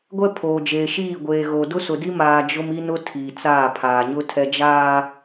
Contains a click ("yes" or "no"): no